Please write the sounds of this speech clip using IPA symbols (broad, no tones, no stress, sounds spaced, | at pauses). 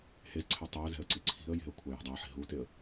h e z ǀʰ ɛ tˤ ɛ ə̯ z ɛ̤ ə̯ ǀ i ǀʰ i̤ ə̯ j e̤ ə̯ kʷʰ a j ɛ̤ dˤ a ħ i̤ ɦ u t e ə̯